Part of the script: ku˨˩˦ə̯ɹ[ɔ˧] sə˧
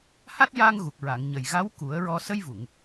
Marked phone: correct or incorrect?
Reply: correct